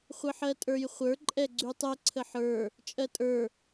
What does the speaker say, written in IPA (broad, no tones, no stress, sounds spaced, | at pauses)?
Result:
χʷ ə ħ ɜ tʼ ə˞ j χʷ ə˞ ǃʼ ɛ ɡ͡ǀ ʉ tˤ ɛ ǀʰ ə ħ ə˞ | t͡ʃʼ ɜ tʼ ə˞